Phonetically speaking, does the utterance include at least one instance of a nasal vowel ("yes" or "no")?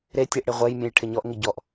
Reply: yes